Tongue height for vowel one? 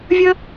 mid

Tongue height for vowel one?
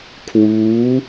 high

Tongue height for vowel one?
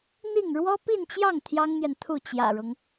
high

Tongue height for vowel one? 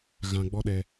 low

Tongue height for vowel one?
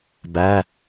low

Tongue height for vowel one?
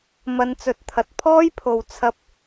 low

